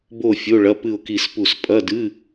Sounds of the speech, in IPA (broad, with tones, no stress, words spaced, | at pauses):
bo˥˨fʲo˧˥˧ɭɐ˧˥˧ pɨ˥˨ʊ̯ki˥˨spu˥˨s pʼɐ˧˥˧dɨ˧˥˧